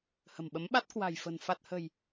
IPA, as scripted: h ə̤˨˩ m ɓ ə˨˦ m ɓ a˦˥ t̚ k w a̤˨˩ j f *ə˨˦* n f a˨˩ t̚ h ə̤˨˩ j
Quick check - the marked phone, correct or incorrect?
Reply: incorrect